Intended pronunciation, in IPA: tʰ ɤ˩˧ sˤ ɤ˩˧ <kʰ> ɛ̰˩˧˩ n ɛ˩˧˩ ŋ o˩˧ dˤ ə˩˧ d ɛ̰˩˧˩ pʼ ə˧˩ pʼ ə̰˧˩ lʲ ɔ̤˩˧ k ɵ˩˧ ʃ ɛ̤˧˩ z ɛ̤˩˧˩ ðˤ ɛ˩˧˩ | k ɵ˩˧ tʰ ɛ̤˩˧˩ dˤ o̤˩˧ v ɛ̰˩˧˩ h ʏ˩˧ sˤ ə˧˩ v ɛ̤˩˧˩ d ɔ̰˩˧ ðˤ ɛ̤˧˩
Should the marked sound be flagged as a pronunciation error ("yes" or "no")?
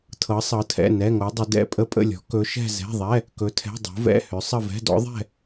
yes